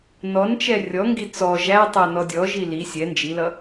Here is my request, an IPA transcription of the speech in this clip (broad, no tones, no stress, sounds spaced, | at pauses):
n ɔ n t͡ʃ ɛ rʲ ɔ ŋ ɡ i t͡s ɔ ʒ æ tˤ ɜ n ɔ dʲ ɔ ʒ i l i sʲ ɛ n d͡ʒ i l ʌ